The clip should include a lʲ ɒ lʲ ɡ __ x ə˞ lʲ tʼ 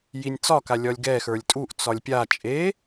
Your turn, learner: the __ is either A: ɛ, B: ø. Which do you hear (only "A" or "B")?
A